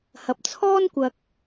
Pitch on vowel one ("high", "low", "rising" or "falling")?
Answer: low